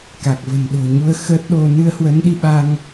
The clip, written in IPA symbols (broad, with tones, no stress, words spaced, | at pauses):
ka˨˩k̚və̤˨˩nɗo̤˨˩ɲu˧ə̯ xə˦˥t̚ɗo˧ nɨ˧ə̯hwə˨˦nɗi˧ɓa˧ŋ